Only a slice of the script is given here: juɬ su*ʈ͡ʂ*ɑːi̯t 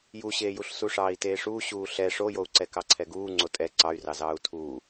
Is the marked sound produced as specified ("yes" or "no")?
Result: no